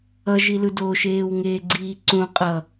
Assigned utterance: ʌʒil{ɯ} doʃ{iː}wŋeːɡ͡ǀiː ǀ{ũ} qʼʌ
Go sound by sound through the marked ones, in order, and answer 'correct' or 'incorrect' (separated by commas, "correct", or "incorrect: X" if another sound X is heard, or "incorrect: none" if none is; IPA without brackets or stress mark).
correct, incorrect: eː, correct